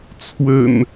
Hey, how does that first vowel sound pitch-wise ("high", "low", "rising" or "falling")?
low